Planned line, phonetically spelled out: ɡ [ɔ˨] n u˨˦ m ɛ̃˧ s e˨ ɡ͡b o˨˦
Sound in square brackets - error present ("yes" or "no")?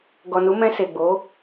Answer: no